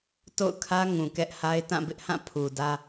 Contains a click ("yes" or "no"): no